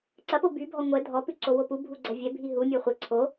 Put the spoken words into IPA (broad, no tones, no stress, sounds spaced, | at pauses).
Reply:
ǀ ɐ p o b y bʱ ɔ ŋʷ ɛ dʱ ɔ p ʉ ǀ o w o p u bʱ u ɡ͡ǀ ɐ vʲ ɛ bʱ i ɦ u mʲ ɔ χʷ ɛ ǀʰ o